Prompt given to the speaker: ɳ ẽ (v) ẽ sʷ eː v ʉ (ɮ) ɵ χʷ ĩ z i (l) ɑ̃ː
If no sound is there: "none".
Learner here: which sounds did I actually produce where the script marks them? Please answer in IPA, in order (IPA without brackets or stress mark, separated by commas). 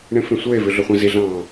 f, ɮ, ɮ